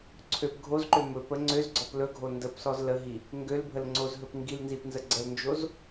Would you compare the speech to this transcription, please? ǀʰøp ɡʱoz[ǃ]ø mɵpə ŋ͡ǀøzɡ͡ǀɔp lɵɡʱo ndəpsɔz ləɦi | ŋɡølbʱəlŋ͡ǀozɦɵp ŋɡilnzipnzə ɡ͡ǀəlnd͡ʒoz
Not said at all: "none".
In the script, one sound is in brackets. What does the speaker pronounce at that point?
ǃ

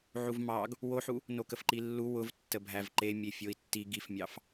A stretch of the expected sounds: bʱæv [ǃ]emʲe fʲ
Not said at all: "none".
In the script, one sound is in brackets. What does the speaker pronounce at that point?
ǃ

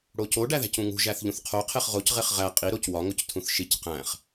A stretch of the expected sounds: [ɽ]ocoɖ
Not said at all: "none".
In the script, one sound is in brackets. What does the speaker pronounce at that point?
ɽ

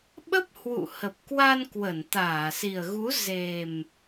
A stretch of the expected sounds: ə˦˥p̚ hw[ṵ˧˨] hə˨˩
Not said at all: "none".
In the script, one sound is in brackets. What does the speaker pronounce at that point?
ṵ˧˨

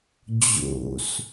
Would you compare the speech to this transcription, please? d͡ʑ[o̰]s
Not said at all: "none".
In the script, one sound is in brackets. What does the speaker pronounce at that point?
o̰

